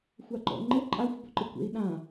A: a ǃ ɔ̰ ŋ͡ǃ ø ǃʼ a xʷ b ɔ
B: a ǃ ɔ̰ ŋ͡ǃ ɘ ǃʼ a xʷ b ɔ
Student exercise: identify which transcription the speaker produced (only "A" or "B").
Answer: B